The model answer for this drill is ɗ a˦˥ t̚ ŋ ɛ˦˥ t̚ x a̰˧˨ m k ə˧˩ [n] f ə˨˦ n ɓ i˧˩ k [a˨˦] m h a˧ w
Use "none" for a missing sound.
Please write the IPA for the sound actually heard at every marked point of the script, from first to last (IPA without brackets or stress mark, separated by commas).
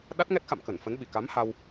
n, a˨˦